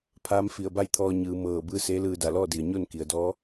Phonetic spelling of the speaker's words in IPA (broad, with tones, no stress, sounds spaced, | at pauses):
pʰ aː˧˥ m f i˧˩ ə̯ b a˥˨ j t̪ʰ ɔː˧ ɲ ɯː˩˧ m ɤː˧˩ b ɯː˧˥ s eː˧˥ l ɯː˧ d a˧˩ l ɔː˥˨ d i˩ ə̯ ɲ o˥˨ n k i˩ ə̯ d ɔː˧˥